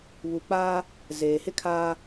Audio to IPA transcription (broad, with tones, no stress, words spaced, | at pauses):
βu˨k͡paː˦ | zeː˨hɪ˦kʰaː˦